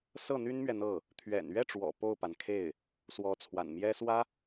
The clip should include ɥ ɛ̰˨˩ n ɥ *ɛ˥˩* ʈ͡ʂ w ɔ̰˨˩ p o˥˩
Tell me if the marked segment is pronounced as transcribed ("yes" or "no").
yes